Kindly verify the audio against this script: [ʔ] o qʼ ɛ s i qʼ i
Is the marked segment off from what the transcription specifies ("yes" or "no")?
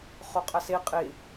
yes